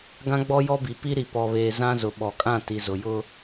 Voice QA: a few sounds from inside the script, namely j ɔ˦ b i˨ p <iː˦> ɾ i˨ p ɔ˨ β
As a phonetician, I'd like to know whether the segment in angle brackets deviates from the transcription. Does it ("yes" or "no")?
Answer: yes